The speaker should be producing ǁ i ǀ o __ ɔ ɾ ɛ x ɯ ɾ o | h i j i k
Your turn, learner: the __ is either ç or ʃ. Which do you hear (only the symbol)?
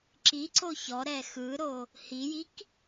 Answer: ç